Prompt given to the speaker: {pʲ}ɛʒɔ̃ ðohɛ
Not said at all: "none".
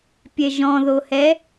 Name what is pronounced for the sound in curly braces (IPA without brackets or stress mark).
pʲ